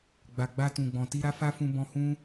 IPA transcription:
ɡ͡b a˨ ɡ͡b a˧ t ũ˨ ɡ͡b ɔ̃˨ t i˧ ɾ a˦ f a˦ f ũ˧ b ɔ̃˧ h ũ˦

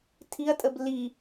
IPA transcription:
tʰ i ɐ̯ tʼ ə b l i

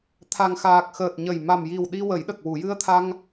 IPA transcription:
t̪ʰ a˨˩ ŋ x aː˨˩ k̚ x əː˨˩ t̚ ɲ ə˨˩ j m a˨˩ m j i˨˩ w ɗ i˧ w ə˨˩˦ j ɗ ə˨˩ k̚ w u˨˩˨ j ɨ˧ ə̯ t̪ʰ a˧ ŋ

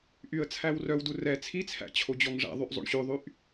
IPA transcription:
ʔ y ə̯ t͡sʰ æ w r œ w d u r ɛ t͡sʰ i t͡sʰ æ̰ t͡ɕʰ o d͡ʑ ɔ ŋ ʐ æ̰ ðˤ y ʔ zˤ o̰ ɳ ɕ ʉ ðˤ y ʔ

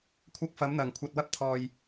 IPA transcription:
kʷʰ ɐ˧ k̚ f ɐ˨˧ m n̪ ɐ˨ ŋ kʷʰ ɐ˧ t̚ w ɐ˥ p̚ t̪ʰ ɔː˧ j

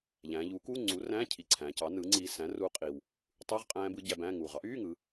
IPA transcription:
ʎ æ̃˩˧ ʎ u˩˥ k uː˧˥˧ ŋ͡ǀ uː˩˥ r æ̃ː˧˥˧ cʰ i˨˩ ǀʰ æ̃˩˧ c ɑ˩˥ n ɯ˩˥ ŋ͡ǀ iː˧ s æ̃˩˥ r uː˧ qʼ i˨˩ w | tˤ y˧˥˧ ʁ qʼ æ̃ː˦˥ b ɯ˦˥ ɟ æ˧ b æ̃ː˧˥˧ ŋ uː˨˩ ʁ ɑ˦˥ ʔ yː˧˥˧ ŋ ɯ˩˧

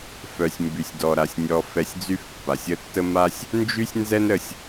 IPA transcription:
f œ˩ sʲ m b y˩ sʲ d ɔ˩ ɾ a˩ sʲ nʲ ɔ˧ f ɛ˧ sʲ d͡z y˥ f pː a˩ sʲ ə˥ tː ə˥ m a˥ sʲ | n d͡ʒ y˥ sʲ n z ɛ˥ n ɾ ə˩ sʲ

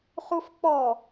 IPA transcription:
χ u f k͡p ɔ

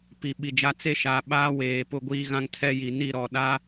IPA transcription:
p i˨ ɓ i˨ d͡ʒ a˦ t͡s e˦ ʃ a˨˦ ɓ aː˦ w eː˨ p ʊ˦˨ ɡʷ iː˦ ɣ ã˦ ŋ tʰ ɛ˦ j i˨ n i˦˨ ɾ ɔ˨ ɗ a˦

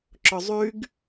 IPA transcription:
ǁ ʊ zˤ y ɡ

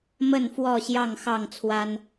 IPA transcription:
m ə˥˨ n f w ɔ˥˨ ɕ j ɑ˥˨ ŋ x ɑ˥˨ ŋ t͡sʰ w a˦ n

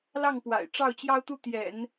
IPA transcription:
l ɑ˥˩ ŋ p w a̰˨˩ ɪ̯ ʈ͡ʂ ɑ˥˩ ʊ̯ t͡ɕ j ɑ˥ ʊ̯ t̪ u˥˩ t̪ j ɛ̰˨˩˦ n

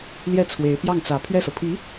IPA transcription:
l j ɛ˥˩ t͡sʰ w e˧˥ ɪ̯ p j ɑ˥˩ ŋ t͡s ä˧˥ pʰ ɥ ɛ˥˩ s ɤ˩ pʰ i˧˥

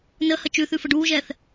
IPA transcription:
n ə h ə t͡ʃ ʉ θ ʉ f ə ɖ uː ʒ ɛː θ

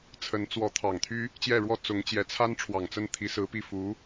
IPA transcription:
t͡sʰ ə˧˥ n t͡s w ɔ˧˥ t̪ʰ ɑ˨˩ ŋ t̪ʰ y˥ | t͡ɕ j ɛ˥˩ ɻ w ɔ˥ t͡s ʊ˧˥ ŋ t͡ɕ j ɛ˧˥ t͡sʰ a˥ n ʈ͡ʂʰ w ɑ˨˩ ŋ t͡s ə˥˩ n t̪ʰ i˧˥ s ɹ̩˧˥ p i˥˩ f u˧˥

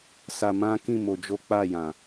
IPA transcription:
s a˧ m ã˦ k ĩ˦˨ m o˧ d͡ʒ o˦ k͡p a˦˨ j ã˨

